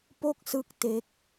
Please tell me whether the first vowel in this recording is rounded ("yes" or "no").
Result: yes